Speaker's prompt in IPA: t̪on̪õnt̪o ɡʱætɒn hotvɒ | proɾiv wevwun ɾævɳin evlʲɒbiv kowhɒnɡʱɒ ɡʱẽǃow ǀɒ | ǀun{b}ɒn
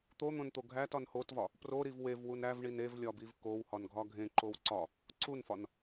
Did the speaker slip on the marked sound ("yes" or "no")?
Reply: yes